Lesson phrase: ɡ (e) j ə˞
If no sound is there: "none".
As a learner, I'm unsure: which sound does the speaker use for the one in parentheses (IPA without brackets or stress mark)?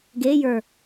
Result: e